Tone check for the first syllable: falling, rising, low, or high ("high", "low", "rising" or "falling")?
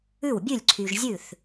falling